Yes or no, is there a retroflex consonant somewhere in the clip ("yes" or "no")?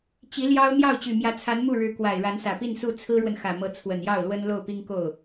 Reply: yes